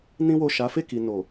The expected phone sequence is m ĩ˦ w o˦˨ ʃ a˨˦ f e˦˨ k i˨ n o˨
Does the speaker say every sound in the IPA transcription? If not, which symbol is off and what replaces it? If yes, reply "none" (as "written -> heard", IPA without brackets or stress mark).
m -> n